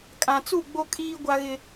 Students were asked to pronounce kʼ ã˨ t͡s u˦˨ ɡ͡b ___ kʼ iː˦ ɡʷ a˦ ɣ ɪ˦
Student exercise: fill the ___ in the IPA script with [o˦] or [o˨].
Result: o˦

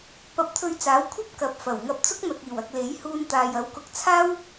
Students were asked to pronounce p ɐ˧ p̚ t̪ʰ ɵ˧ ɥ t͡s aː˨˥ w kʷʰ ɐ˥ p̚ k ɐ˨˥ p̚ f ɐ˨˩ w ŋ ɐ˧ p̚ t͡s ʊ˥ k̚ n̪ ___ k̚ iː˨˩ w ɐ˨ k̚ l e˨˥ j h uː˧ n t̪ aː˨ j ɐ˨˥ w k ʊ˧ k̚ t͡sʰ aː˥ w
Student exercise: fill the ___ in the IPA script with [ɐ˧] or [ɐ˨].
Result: ɐ˨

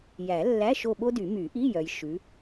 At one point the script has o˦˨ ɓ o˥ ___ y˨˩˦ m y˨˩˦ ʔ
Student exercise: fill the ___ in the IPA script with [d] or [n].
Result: d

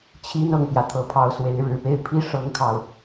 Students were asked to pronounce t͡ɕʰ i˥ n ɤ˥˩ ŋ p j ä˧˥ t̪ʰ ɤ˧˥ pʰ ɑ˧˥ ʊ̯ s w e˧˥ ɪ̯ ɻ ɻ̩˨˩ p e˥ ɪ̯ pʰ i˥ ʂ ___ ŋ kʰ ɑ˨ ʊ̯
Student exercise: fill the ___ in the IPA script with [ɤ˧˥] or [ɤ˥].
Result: ɤ˥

